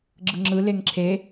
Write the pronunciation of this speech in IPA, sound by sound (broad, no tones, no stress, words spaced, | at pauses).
ɡ͡ǁɯŋ͡ǁɯ leŋǁʰe